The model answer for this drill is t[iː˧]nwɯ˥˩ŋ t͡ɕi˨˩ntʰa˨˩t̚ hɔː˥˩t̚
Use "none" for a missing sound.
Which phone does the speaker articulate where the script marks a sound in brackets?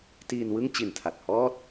iː˧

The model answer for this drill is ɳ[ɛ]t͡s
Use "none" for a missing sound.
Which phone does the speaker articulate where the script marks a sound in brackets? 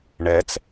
ɛ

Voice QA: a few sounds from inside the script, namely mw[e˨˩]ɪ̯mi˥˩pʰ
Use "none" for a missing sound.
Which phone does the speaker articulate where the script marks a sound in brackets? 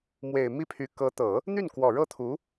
e˨˩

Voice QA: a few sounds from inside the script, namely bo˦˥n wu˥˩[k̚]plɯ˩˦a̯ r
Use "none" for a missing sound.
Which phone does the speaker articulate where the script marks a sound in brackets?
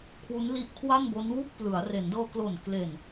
k̚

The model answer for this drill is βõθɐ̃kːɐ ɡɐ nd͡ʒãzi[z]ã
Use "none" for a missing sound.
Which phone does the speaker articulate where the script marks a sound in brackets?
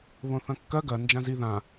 ð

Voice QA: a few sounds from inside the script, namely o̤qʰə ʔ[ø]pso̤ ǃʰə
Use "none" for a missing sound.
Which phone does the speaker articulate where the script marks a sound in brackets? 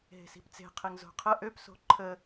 ø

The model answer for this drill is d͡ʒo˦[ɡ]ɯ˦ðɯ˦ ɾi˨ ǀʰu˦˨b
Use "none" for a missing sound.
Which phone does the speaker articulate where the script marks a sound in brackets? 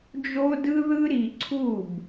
d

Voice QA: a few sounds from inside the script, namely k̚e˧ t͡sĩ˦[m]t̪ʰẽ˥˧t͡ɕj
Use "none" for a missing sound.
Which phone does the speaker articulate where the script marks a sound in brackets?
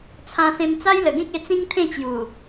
ŋ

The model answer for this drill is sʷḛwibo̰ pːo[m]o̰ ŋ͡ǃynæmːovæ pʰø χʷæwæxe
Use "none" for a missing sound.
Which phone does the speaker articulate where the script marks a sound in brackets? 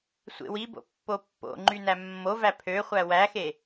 pː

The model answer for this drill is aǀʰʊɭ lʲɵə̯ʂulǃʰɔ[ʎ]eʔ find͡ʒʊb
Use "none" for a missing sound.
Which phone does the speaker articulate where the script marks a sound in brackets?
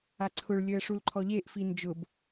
ʎ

